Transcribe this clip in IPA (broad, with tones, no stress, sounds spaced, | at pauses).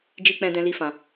d͡ʒ i˧ k͡p ɛ̃˧ d ɛ̃˦ l i˦ f ã˧